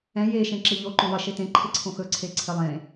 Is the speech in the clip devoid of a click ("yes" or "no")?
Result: no